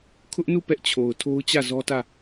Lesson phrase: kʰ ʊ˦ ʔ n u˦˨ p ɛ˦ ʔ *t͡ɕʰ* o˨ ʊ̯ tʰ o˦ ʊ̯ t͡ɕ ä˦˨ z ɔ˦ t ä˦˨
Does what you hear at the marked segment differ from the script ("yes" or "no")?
no